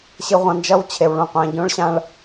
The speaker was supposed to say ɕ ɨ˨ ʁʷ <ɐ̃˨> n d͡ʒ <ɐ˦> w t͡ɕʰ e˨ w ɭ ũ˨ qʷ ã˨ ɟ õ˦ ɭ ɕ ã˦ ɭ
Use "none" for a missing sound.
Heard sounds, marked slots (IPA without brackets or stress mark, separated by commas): ɐ̃˨, ɐ˦